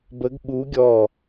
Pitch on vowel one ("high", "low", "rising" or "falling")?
rising